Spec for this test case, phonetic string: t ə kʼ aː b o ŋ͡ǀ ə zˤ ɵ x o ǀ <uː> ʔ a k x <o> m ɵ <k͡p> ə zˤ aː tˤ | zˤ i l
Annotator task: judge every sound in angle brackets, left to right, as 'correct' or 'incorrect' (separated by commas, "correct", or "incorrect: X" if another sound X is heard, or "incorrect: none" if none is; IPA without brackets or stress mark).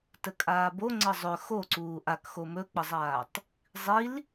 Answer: correct, correct, correct